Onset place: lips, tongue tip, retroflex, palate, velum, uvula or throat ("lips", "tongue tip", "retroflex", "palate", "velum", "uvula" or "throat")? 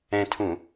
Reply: tongue tip